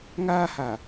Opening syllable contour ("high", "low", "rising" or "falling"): high